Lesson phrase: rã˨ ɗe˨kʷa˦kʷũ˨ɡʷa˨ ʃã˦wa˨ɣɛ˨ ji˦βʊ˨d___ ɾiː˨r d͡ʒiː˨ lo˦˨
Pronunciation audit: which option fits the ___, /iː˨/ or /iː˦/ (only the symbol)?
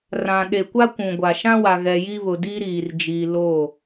iː˦